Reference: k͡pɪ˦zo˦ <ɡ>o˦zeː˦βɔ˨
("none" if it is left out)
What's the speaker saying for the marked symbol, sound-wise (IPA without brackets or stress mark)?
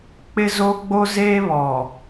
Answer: ɡ͡b